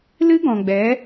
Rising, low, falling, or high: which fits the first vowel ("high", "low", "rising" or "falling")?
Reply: high